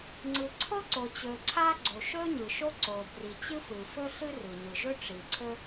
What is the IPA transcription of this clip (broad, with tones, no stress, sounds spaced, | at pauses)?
ŋ͡ǀ ɯ˩ ǀʰ o˥ ǀ o˩ t͡ɕ ɵ˩ ǀʰ a˥ ɡ͡ǀ o˩ ʃ ɵ˥ ɲ ɯ˩ ʃ o˥ ǀ o˩ b r i˩ t͡ɕ ɯ˥ f ɯ˩ f ɵ˥ ɬ ɯ˥ r ɯ˩ ɲ ɯ˩ ʒ ɵ˥ ʈ͡ʂ i˩ ǀʰ ɵ˥